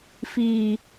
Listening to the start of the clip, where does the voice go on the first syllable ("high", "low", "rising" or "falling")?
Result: low